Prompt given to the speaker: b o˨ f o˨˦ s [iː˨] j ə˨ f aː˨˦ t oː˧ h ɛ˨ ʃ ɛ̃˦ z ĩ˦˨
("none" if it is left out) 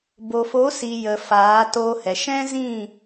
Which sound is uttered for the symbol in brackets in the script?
i˨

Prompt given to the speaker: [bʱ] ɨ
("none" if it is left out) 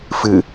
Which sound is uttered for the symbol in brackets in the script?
f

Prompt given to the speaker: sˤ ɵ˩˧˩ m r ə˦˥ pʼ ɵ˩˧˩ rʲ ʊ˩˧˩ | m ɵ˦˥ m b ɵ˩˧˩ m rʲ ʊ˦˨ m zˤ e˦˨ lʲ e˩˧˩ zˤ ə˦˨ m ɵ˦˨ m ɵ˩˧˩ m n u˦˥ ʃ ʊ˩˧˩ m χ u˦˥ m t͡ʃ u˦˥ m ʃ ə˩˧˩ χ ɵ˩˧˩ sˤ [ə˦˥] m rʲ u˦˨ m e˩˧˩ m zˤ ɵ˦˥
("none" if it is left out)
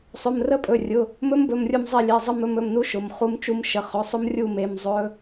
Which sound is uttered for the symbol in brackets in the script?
ʊ˦˥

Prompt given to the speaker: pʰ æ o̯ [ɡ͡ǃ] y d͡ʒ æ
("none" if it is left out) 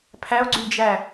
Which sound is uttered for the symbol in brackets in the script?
ɡ͡ǀ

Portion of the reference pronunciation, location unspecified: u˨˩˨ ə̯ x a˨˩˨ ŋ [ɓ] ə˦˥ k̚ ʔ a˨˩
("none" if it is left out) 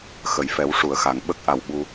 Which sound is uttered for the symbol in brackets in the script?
ɓ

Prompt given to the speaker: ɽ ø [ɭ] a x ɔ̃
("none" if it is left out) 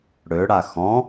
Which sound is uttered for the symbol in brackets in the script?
ɽ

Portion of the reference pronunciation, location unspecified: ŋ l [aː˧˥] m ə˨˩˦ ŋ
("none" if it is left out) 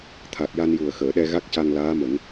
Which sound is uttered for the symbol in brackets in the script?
aː˧˥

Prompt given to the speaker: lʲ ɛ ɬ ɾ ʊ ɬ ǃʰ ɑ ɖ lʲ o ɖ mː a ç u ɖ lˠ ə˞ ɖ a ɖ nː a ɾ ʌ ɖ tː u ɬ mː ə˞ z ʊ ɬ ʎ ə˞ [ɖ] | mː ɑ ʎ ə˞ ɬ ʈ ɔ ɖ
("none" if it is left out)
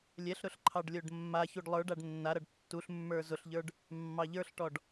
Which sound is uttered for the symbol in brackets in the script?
ɖ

